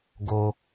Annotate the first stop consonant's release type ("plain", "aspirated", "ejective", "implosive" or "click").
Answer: plain